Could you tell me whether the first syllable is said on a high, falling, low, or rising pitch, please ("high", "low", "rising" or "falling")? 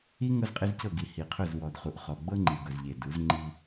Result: high